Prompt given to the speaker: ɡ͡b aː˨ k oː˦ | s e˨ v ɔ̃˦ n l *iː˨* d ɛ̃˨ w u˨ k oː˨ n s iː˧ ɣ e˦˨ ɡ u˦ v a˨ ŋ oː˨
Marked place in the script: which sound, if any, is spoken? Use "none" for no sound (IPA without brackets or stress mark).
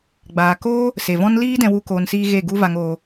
iː˧